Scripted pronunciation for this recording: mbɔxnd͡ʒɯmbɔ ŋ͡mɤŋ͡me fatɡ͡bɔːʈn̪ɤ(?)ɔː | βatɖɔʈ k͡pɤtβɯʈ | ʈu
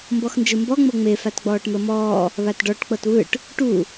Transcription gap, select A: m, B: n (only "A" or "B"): A